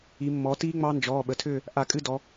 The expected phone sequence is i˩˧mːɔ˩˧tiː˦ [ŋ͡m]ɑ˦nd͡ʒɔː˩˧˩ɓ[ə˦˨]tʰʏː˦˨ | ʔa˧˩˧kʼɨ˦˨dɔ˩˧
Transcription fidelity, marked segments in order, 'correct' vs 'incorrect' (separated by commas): correct, incorrect